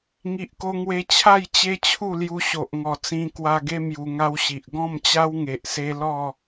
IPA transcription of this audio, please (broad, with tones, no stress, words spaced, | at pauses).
ŋi˨ʔko˧ŋwe˧ t͡ɕʰa˥˧j t͡ɕe˦t͡ɕʰu˥˧lju˧ɕo˨ʔ ŋɔ˨˩t͡sĩ˧kwa˧ɡe˦ mju˧ŋa˦wɕi˨ʔ ɡɔ̃˥˧mt͡ɕa˦wŋe˨ʔse˧ lɔ˥˧